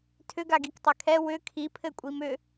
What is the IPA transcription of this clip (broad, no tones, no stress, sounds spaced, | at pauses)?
tʰ ʏ ɡ a ɡ i k tˤ ɛ kʰ ɛ w ʏ kʰ i pʰ ɘ kʷʼ i m ʏ